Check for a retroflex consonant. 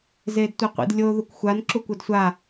absent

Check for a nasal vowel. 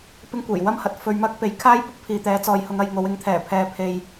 absent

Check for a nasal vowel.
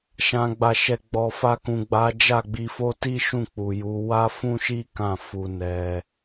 present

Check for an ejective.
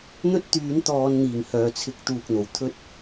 absent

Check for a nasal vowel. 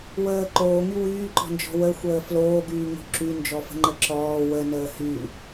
absent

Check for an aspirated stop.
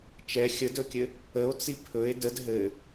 present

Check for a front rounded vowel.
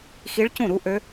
present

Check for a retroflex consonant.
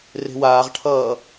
present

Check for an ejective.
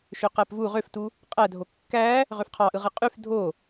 present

